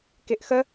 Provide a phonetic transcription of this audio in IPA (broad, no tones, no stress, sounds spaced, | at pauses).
k ɪ ʔ x ə